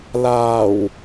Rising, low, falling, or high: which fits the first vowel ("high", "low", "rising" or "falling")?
low